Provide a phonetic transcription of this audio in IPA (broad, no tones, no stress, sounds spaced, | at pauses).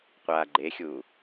qʷ aː ɡ͡ǃ e xʲ uː